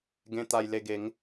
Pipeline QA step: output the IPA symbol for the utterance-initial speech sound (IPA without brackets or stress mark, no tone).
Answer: ɡ